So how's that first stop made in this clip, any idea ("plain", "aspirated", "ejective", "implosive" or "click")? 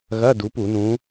plain